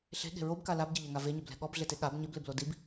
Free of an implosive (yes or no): no